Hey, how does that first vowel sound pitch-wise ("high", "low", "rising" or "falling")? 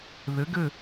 rising